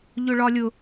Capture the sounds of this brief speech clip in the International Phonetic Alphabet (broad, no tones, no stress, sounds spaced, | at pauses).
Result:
ʎ ʊ ɭ ɒ lʲ ʊ